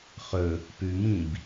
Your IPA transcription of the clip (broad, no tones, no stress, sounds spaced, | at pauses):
χ ɵ | p ʉ m ĩ b